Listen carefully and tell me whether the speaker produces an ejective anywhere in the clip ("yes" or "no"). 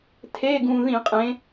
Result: yes